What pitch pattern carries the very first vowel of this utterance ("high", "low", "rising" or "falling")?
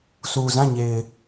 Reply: low